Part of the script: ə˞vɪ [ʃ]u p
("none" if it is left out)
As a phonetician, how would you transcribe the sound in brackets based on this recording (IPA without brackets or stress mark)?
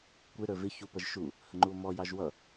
ç